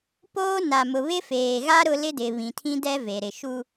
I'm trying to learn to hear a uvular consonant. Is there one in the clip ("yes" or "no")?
no